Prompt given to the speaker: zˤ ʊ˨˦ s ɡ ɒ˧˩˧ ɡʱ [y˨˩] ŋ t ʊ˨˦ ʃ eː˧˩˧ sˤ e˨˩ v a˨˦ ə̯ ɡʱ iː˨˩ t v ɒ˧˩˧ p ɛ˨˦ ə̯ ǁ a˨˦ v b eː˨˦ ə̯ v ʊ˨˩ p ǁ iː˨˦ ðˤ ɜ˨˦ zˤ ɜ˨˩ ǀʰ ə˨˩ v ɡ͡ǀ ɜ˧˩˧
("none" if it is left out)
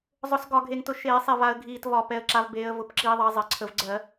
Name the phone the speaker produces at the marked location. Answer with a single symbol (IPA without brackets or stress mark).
e˨˩